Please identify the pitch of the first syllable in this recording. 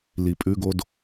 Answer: low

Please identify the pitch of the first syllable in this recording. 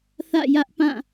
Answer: falling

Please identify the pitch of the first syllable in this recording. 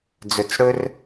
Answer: low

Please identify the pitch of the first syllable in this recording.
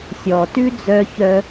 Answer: low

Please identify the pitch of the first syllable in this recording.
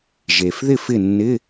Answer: low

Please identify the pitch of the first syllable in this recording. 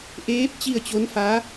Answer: rising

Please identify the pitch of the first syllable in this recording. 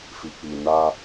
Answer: low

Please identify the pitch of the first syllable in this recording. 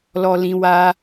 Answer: low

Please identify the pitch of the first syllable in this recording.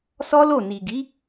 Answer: high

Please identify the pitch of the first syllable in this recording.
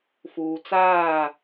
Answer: low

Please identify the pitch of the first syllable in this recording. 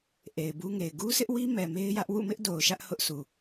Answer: low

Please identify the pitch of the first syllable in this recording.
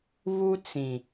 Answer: high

